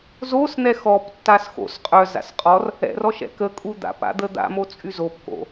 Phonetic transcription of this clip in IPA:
z o s n̪ ɛ x ɔ p tː a s x o̰ s qʼ œ z a̰ s qʼ ɔ r | ɛ̰ r ɔ ʃ ɛ̰ k ə kʼ u d̪ a̰ p a̰ d̪ ə d̪ a̰ m o t͡sʼ y z o p k o̰

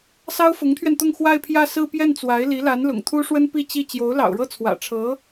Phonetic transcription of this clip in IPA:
s ɑ˥ ʊ̯ f ʊ˧˥ ŋ t̪ʰ ɥ ɛ˧ n t̪ ʊ˥˧ ŋ x w a˥˧ ɪ̯ pʰ j ä˥˧ s ɹ̩˥˧ p j ɛ˥˩ n t͡s w a˧˥ ɪ̯ l i˧˥ l a˧˥ n l ʊ̰˨˩ ŋ t̪ʰ u˥ ʂ w ə˥ n p i˥˧ t͡ɕ i˥˩ t͡ɕ j o˧˥ ʊ̯ l ɑ̰˨˩ ʊ̯ ɻ ɤ˥˩ t͡sʰ w ä̰˨˩ ʈ͡ʂʰ ɤ˧˥

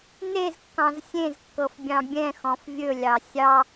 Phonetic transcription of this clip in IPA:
n e z kː ɑ̃ z sʲ ẽ z kː ɤ f bʲ ɑ̃ bʲ ɛ̃ x ɔ̃ f vʲ ɵ lʲ ɑ sʲ ɑ

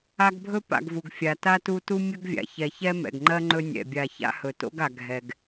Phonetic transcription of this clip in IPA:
a˦ ɡ bʱ ɵ˥ p a̰˨ ɡ v u˩ ɡ fʲ a˩ t a˥ t u˦ t u˥ mʲ ɵ˥ ɡ vʲ a̰˩ ç ɛ˨ ç ɛ˦ m ɛ̰˩ ɡ ŋ͡ǃ ɜ˥ ŋ͡ǃ ɵ˦ nʲ ɛ̰˩ bʲ a˨ ç a̰˦ h ɵ˩ t o̰˥ ɡ a˩ ɡʱ ɛ˨ ɡ

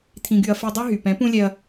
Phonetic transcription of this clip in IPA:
t̪ʰ ĩ˧ ɡ y˧ ɐ̯ f i˧ dˤ y˦ ɦ y˨ p ɛ̃˨˦ p ũ˦ lʲ ɛ˧ ɐ̯

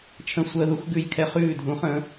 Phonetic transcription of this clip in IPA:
t͡ʃʰ ə̃˧ sʷ əː˧ ð u˦ x ɡ ʉ˧ j kʰ ɛ˧ χ ʉː˦˨ dʱ ũ˨˦ χ ə̃ː˨˦

